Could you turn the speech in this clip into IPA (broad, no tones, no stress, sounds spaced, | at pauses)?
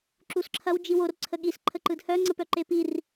ǁ u s ǁʰ ɐ w d͡ʒ i w o r ǀʰ ə ɠ i s ǃʰ ə ǃ ɯ d h œ ŋ͡ǀ ə p œ ǃ e p i r